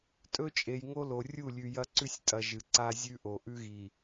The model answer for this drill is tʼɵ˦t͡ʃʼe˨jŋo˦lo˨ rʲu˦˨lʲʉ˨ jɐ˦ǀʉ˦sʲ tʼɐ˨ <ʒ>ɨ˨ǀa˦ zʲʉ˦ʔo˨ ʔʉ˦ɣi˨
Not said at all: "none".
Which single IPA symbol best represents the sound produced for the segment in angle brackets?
ʒ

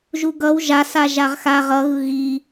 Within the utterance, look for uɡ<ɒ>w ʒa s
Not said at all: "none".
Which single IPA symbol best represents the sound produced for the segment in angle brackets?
ʌ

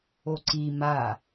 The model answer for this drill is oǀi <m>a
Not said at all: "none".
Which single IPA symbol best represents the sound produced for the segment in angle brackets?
m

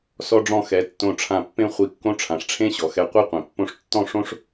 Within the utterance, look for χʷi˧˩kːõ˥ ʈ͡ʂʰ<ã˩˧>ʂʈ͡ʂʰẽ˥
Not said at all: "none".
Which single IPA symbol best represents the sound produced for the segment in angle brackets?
ã˩˧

